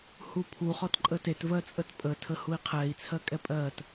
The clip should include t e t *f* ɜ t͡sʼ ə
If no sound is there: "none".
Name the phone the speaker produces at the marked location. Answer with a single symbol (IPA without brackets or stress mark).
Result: v